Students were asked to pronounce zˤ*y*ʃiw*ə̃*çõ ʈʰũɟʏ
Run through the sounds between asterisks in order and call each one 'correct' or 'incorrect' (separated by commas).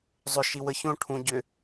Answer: incorrect, incorrect